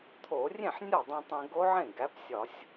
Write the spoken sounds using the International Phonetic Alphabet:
t̪ʰ o˧˩˧ rʲ ẽ˥˩ ħ nʲ ɒ˥˩ dˤ ũ˧ tˤ ẽ˧ ɡ o˦˥ ʕ ẽ˥˩ ɡ æ˩˥ p sʲ ɒ˧˩˧ sʲ

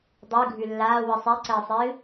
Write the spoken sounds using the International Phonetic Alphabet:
dˤ ɯ ɡʱ ʉ lː aː w ɯ sˤ ɛ ǀ əː sˤ ɨː

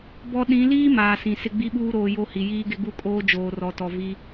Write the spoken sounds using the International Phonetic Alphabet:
b ɔ˦ ɗ ĩ˨˦ l iː˦ m aː˨ s ĩ˨ s ɪ˦ ɡ͡b i˦ ɓ uː˦ ɾ oː˨ j o˦ h i˨ j iː˦ ɡ ɪ˦ ɡ u˦ kʼ oː˦ d͡ʒ oː˨ r ɔ˨ t ɔ˨ v i˦

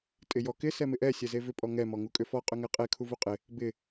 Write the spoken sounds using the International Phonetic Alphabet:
tʼ ɪ j ɔ k ɪ s ɛ m ɪ ʔ ɛ sʲ ɛ z e v ʏ pʼ ɔ ŋ ɛ m ɔ ŋ u kʼ ʏ f ɔ qʼ ʏ ŋ ɛ qʼ e kʰ u v u qʼ ɪ | b ɪ

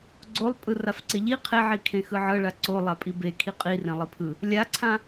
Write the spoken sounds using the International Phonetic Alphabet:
ɡ͡ǀ o lˠ pʼ ɯ r a f ǀ e ʎ i qʰ e ʕ i kʰ ẽ x ɯ ʕ ɤ ɭ a ǀ o lˠ a pʼ i b e kʰ i qʼ i r ẽ lˠ i pʰ ɯ | lʲ a ǀʰ ã

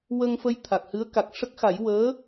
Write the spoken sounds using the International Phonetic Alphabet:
w ə˧ ŋ f ə˧ j t̪ʰ a˨˩ k̚ h ɨ˧˥ ə̯ k a˨˩ k̚ ʂ ə˦˥ k̚ x a˨˩˦ j w əː˧˥

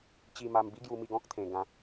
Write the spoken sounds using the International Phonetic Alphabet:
t͡ɕ i˧ m a˧ m b i˦ ɡ j u˧ m i˧ ɡ ɔ̃˦ k̚ t̪ʰ ẽ˧ ɡ ã˧

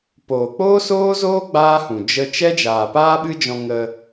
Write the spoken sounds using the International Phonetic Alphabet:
p oː˨ k͡p oː˦ s oː˦ z oː˦ ɡ͡b aː˦ h ũ˨ d͡ʒ ə˧ t͡ʃ ɛ˦ d͡ʒ aː˨ p aː˦ ɓ ɨ˦ d͡ʒ ɔ̃˧ ŋ ə˧

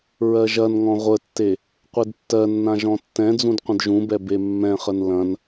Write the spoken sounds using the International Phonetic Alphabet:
ɹ ɜ ʒ ɐ n ŋ ɔ̃ ʁʷ ə tː e | qʷ e d tː ɜ nː ã ʒ ɔ̃ tː ɛ̃ d͡z ũ d qʷ ə̃ d ʒ ũ b ɛ b e mː ɛ̃ χ ə n l ɐ̃ n

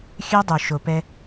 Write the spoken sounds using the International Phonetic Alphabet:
xʲ ø˦ dˤ u˨ ʃ o˨ p ɛ˧

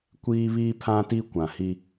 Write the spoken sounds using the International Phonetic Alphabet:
kʷ iː˦ β iː˦ pʰ ã˦ t i˦ kʷ ã˨ h i˦

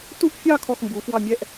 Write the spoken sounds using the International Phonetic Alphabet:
t u˥˧ ʔ fʲ ɑ˥˧ kʰ ɔ˥˧ x m b u˨˥ f w ɑ˥˧ mʲ ɛ˥˧ ʔ

